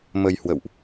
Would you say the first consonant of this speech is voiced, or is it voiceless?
voiced